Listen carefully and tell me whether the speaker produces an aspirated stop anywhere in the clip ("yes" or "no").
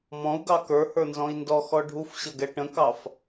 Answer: no